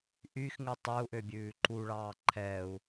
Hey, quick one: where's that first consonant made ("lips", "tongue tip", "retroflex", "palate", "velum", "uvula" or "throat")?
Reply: throat